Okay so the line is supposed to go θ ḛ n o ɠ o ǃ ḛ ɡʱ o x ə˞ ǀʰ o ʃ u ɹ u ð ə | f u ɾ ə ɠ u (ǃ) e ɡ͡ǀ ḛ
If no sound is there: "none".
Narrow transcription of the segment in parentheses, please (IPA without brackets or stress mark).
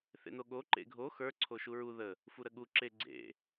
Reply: ǁ